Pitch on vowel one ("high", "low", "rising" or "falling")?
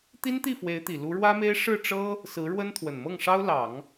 high